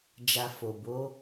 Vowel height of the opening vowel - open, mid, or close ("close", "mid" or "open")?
open